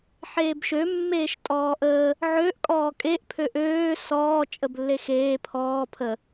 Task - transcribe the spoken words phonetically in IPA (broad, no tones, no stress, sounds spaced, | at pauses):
ħ eː b ʃ ø mː eː ʃ tʼ ɔː ʔ əː | ʕ ø ʔ kʼ ɔː kʼ e ʔ pʰ ø ʔ øː s ɔː t͡ʃʼ ə b lː e x eː pʰ ɔː pʰ ə